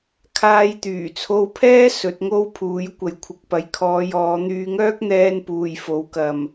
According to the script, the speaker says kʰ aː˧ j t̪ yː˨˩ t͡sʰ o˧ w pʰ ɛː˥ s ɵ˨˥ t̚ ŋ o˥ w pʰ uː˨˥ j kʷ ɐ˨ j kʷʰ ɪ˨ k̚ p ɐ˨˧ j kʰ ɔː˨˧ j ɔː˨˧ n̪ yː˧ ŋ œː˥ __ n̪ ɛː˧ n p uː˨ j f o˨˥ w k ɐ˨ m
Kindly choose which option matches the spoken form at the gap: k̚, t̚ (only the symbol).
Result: k̚